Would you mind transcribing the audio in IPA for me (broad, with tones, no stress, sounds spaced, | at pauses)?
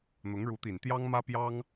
n̪ ʊ˧˥ ŋ ɻ u˧˥ t̪ i˨˩ n t̪ j ɑ˥ ŋ m ä˥ p j ɑ˥ ŋ